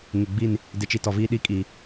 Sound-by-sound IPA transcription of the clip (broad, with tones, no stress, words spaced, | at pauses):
ŋɪ˨ɡ͡bi˦˨n | dɪ˨t͡ʃi˨ tɔ˨viː˦ ɗi˦˨ kʼiː˨